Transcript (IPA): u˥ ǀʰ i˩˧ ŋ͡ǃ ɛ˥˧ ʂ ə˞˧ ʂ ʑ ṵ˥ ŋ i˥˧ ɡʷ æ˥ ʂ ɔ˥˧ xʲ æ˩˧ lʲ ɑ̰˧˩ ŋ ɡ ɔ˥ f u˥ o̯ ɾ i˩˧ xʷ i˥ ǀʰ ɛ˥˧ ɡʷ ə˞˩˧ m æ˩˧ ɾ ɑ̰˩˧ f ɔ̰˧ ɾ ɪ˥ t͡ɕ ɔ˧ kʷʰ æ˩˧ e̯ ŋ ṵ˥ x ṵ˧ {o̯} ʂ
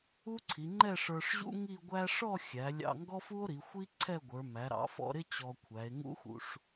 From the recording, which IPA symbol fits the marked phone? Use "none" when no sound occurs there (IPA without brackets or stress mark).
none